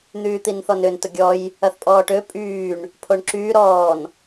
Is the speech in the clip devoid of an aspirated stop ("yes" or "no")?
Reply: no